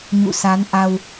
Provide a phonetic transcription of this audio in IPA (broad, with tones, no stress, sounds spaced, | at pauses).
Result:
ɲ ṵ˧˨ s a˨˦ n ʔ a˧ w